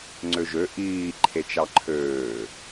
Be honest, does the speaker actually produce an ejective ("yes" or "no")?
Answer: no